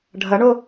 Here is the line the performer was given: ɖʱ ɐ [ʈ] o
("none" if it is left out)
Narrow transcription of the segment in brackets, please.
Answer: ɳ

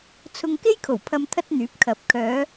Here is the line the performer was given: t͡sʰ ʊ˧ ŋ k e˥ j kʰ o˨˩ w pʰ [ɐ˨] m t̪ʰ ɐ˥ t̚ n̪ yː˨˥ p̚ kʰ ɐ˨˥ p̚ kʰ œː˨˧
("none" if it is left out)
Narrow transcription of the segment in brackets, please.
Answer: ɐ˧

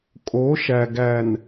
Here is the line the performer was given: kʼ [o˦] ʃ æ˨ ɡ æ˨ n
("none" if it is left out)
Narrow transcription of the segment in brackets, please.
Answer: o˨˦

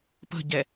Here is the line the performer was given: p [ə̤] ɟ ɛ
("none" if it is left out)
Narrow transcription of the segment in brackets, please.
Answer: ə̤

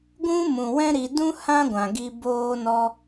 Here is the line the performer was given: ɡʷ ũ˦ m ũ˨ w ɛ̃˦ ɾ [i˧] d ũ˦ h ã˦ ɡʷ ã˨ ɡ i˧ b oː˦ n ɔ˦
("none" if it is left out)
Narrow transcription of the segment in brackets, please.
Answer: i˧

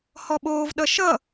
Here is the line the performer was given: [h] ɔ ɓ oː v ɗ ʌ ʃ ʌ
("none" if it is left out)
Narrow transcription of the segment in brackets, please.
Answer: h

